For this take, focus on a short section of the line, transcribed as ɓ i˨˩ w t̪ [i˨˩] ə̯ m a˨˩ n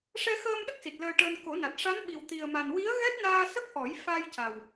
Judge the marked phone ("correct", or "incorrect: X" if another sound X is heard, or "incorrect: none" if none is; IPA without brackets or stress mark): correct